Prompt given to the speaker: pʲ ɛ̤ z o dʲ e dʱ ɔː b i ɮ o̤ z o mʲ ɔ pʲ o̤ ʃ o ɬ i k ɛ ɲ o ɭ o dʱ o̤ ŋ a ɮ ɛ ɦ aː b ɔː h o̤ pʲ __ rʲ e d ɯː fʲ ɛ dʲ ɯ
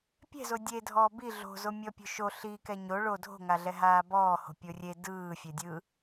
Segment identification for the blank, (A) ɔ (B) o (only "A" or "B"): B